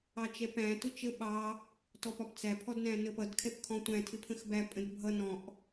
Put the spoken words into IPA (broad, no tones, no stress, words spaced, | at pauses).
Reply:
ɑt͡ʃɛpæ̃ tʊt͡ʃə ɓɑ | tɔpɒpt͡sæ pʰɔdnæ̃nəpʌd kʰɛpkʰɔ̃tʷæ̃ tʰɪpʰə̃xbæ pʼə̃dbʱʌ nɔ̃ʔ